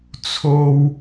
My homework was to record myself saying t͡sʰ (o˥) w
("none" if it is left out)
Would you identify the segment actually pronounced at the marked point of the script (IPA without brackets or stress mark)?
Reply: o˥